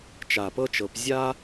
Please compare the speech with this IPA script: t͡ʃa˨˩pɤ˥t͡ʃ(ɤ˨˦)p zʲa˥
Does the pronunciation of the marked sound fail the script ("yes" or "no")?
no